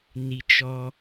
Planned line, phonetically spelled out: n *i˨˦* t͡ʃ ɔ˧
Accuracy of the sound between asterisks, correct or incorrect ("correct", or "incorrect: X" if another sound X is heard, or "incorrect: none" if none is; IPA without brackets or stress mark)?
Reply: incorrect: i˨